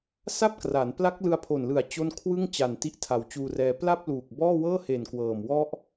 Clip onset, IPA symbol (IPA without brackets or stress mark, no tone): s